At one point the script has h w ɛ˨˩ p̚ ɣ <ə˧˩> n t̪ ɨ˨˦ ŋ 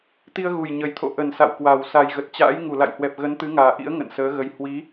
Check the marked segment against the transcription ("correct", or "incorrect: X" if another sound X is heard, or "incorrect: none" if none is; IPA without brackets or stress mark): incorrect: ə˨˦